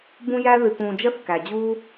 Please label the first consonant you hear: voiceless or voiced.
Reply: voiced